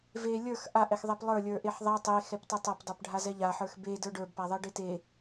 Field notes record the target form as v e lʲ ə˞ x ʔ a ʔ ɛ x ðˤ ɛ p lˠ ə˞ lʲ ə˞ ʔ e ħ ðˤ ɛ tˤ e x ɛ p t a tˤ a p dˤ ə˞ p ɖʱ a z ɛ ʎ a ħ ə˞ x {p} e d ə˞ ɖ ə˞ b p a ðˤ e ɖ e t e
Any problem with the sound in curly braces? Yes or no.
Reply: yes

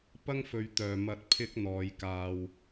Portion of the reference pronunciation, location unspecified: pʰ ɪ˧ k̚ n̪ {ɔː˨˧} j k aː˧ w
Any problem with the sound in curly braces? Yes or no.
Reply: no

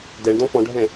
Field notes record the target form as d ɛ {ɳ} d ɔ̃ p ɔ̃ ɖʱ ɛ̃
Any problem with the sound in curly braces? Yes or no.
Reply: no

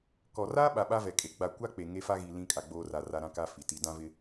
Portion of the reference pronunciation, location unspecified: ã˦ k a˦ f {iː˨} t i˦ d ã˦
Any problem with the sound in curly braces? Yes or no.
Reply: yes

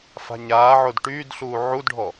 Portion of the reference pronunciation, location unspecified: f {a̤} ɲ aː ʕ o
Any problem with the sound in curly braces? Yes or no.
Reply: no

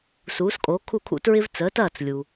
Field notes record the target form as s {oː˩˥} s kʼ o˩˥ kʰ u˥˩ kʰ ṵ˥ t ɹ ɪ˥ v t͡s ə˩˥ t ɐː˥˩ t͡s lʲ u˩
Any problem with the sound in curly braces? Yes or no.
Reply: yes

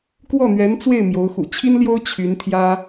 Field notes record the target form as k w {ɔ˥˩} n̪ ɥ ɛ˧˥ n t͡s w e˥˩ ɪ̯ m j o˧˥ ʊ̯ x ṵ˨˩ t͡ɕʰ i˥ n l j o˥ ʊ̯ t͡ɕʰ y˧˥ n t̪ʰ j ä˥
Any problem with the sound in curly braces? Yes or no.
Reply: no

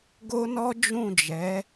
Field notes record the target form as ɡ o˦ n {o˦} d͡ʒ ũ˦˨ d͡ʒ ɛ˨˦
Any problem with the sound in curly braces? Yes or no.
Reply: yes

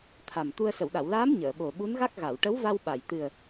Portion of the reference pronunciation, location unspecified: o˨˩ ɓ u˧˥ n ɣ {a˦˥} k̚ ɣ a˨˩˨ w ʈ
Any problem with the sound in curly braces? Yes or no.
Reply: no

